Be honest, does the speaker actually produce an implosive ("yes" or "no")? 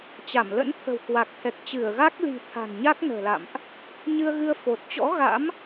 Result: no